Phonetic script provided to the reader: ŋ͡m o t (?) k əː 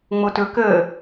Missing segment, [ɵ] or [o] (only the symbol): ɵ